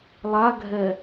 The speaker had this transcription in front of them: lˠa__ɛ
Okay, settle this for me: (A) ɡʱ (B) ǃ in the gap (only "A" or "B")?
A